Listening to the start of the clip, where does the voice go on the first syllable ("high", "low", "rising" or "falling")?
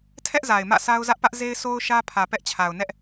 high